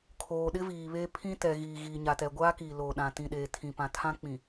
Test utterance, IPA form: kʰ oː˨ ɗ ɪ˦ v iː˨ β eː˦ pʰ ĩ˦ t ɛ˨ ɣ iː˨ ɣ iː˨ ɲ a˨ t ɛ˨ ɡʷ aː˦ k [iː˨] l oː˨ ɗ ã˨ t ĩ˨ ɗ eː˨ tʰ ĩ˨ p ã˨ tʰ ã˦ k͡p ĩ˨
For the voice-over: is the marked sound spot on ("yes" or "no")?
yes